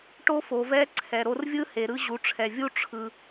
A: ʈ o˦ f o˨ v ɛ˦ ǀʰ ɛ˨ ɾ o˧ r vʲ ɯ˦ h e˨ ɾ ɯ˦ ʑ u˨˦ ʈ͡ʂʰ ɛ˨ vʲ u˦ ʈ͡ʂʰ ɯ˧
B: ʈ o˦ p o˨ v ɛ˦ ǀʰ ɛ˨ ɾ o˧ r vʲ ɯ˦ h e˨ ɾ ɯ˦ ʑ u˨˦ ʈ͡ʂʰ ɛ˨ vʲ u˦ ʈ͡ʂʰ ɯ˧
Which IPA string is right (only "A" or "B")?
A